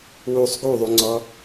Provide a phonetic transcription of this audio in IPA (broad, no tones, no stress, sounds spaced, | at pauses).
w u sˤ ɡ u ðˤ u ŋ͡ǀ ɔ